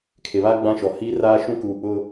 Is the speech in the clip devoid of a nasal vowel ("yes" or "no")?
no